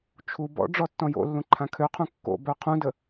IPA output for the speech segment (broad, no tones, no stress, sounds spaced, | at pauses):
t͡ʃʰ u b ɔ̰ ɖ͡ʐ ɔ tː ɔ̃ j o̰ lː ũ ǃʰ ã kʰ ø qʰ ũ kː o̰ b œ qʰ ũ d ə